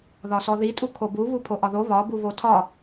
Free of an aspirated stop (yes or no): no